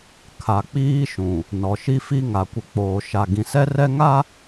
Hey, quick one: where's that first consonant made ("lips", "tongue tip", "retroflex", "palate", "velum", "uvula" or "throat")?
velum